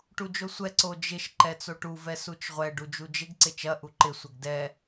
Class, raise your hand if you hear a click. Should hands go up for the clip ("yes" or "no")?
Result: yes